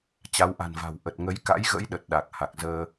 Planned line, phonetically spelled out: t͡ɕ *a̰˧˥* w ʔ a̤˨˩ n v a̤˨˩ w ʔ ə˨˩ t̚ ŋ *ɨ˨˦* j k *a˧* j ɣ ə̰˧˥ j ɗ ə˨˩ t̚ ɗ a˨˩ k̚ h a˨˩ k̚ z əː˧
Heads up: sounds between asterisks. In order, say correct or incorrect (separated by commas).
incorrect, incorrect, incorrect